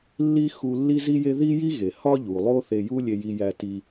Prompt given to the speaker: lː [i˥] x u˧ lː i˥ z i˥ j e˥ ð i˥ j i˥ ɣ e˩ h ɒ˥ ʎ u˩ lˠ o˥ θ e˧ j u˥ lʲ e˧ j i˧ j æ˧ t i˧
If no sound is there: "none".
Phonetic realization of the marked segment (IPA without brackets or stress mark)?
i˥